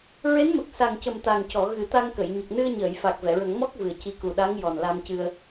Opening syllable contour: rising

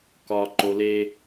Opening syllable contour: low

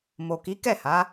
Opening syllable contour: low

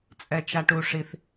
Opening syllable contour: low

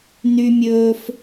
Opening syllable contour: high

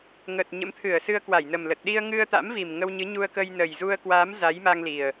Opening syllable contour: low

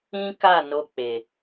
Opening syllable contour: high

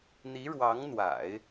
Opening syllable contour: rising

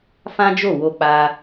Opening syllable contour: high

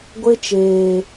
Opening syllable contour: high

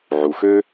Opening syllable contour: low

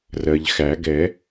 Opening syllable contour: low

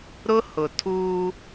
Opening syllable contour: high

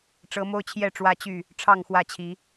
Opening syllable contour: rising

